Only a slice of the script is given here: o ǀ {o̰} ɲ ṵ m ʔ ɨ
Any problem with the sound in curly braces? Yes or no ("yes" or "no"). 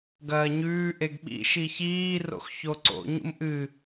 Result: no